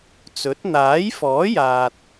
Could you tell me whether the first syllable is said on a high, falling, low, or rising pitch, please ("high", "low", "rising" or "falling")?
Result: rising